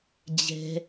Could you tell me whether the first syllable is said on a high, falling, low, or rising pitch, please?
low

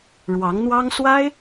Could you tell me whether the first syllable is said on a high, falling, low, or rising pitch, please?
rising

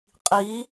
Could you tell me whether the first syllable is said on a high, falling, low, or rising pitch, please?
rising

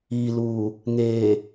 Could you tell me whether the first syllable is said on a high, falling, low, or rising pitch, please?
low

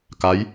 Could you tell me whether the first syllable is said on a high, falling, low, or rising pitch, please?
rising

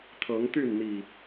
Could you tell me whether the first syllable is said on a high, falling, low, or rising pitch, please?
rising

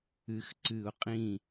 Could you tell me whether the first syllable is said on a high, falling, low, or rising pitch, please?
rising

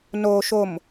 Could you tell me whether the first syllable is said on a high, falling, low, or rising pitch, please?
low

